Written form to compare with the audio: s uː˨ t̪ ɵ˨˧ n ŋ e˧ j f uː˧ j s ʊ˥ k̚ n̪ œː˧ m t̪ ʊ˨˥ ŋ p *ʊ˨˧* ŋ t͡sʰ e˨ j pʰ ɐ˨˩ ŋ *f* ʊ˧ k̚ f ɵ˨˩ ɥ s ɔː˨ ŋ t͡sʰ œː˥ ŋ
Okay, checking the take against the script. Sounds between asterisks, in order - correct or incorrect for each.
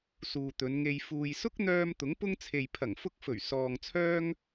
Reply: incorrect, correct

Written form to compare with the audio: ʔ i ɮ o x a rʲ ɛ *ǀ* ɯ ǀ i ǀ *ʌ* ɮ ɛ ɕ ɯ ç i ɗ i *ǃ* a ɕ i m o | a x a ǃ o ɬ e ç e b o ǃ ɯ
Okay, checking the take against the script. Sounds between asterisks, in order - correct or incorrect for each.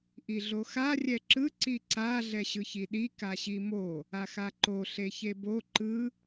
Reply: incorrect, incorrect, incorrect

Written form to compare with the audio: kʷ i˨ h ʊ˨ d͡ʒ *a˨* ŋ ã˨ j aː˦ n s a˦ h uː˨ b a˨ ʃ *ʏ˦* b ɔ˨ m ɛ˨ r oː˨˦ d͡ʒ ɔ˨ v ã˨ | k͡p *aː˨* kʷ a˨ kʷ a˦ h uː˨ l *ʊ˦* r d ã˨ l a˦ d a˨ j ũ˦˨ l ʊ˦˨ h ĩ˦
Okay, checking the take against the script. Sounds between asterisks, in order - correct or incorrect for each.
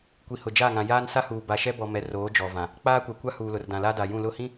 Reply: incorrect, incorrect, incorrect, incorrect

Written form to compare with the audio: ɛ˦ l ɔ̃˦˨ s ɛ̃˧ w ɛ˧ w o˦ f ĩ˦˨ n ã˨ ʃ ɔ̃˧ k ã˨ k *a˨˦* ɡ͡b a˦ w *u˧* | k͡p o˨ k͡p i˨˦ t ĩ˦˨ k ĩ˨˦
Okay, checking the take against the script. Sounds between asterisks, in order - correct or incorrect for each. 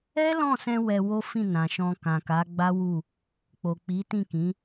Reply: correct, incorrect

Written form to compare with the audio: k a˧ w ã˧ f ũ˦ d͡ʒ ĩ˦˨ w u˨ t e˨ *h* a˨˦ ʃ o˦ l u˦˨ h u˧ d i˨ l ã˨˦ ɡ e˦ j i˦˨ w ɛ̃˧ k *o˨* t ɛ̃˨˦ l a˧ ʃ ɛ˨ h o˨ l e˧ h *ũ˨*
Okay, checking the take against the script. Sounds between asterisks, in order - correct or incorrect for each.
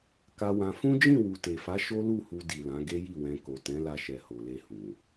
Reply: incorrect, correct, correct

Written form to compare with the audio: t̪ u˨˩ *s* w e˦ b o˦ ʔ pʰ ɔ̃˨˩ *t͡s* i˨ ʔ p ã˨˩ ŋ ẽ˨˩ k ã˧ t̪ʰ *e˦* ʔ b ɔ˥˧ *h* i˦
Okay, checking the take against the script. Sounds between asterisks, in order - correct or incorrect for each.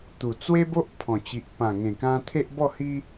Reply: incorrect, incorrect, correct, correct

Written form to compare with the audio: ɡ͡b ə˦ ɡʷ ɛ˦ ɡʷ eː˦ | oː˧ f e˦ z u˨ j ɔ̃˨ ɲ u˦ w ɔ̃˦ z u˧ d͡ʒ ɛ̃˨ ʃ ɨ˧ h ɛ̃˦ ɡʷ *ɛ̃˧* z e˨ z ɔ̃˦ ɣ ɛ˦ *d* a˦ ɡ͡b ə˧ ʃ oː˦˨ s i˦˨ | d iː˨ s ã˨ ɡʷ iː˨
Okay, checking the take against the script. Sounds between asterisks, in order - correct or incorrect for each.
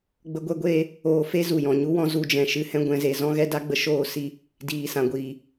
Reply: correct, correct

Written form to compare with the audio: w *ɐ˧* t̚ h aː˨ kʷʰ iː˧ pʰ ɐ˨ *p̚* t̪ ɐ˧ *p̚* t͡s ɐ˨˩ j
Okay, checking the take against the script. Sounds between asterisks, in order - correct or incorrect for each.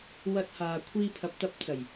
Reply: correct, correct, correct

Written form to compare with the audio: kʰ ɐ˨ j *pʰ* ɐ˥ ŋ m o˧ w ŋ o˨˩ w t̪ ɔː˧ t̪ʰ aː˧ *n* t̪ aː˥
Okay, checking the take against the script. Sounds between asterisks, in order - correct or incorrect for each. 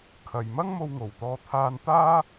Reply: incorrect, correct

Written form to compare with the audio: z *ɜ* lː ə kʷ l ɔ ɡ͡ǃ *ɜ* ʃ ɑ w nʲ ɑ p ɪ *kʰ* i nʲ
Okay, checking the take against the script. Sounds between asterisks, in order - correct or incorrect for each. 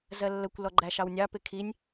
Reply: correct, incorrect, correct

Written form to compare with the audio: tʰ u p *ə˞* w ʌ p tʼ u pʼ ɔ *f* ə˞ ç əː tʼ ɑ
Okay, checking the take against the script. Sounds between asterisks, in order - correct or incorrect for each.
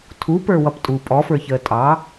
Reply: correct, correct

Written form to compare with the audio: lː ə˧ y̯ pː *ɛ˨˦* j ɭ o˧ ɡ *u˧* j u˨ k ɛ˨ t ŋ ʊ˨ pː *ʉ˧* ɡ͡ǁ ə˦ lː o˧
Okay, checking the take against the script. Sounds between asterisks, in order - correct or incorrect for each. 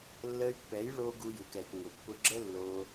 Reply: correct, correct, incorrect

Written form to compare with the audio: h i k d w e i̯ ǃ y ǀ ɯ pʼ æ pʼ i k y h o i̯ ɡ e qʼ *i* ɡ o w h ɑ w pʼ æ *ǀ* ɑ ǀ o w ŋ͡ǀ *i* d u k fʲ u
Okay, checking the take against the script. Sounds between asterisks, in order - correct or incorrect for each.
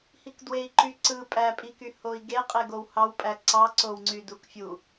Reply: incorrect, correct, incorrect

